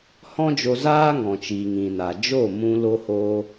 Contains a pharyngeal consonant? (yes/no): no